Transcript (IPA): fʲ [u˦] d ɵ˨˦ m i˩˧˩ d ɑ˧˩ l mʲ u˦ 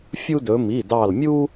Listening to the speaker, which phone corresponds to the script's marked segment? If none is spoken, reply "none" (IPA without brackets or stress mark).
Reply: u˦